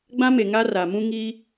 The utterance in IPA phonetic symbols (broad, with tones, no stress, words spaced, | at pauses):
ɡ͡bã˦me˨ ŋa˦ ra˨mũ˦ ŋiː˦